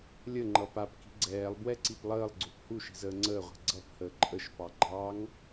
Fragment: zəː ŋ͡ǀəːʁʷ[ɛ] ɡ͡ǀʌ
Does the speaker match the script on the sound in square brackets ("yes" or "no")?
no